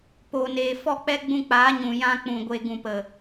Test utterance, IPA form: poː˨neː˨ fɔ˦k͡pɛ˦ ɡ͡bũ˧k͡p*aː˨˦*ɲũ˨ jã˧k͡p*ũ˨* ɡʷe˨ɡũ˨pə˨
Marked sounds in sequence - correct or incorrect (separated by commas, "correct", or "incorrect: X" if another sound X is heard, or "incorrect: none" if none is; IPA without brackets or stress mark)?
correct, correct